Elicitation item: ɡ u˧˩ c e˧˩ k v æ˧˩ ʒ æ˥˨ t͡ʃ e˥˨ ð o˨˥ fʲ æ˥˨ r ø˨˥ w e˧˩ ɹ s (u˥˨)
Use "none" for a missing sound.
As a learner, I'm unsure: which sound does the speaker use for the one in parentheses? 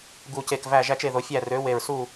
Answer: u˥˨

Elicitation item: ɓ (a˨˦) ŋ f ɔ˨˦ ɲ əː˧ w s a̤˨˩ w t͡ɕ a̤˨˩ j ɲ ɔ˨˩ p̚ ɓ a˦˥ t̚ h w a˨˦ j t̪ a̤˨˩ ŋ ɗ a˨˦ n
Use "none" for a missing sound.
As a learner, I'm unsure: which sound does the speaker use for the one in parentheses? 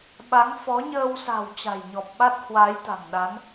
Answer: a˨˦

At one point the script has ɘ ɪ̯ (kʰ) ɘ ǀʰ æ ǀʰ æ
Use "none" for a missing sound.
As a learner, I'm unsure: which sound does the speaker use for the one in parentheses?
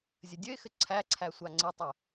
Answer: x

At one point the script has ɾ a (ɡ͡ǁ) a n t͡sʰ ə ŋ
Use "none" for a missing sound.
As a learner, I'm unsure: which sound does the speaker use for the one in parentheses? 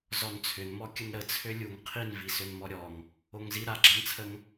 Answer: ɡ͡ǁ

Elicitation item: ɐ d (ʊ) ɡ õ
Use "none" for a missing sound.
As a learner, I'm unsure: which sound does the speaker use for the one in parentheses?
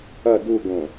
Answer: u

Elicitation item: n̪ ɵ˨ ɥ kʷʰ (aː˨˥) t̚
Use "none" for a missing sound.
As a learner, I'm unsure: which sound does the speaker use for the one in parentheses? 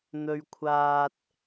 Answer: aː˨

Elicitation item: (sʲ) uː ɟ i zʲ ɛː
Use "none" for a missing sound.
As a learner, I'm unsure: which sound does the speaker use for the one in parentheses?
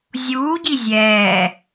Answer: zʲ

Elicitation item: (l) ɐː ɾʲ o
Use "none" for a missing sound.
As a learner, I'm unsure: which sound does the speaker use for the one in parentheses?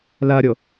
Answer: l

